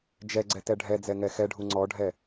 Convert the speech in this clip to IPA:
d͡ʒ ɛ ɡ͡ǀ ɛ t ɛ ɖʱ ɛ d͡z ɛ ŋ ɛ x ɛ ɖʱ u ŋ͡ǀ ɔ ɖʱ ɛ

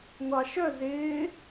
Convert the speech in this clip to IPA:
ŋʷ ɑ ʃ œ z ɪː

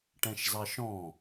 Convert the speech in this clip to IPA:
ʈ ɛ̃ ʃ z ɑ ʃ ɔ̃

